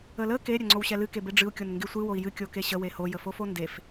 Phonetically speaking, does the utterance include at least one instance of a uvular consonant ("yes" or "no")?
no